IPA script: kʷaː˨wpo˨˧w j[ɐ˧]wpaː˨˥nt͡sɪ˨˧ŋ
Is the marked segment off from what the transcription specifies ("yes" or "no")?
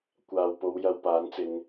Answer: no